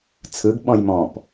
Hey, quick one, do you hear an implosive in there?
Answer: yes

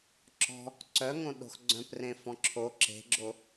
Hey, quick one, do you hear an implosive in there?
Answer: yes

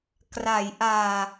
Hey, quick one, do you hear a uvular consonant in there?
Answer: no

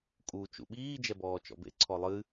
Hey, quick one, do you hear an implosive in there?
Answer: yes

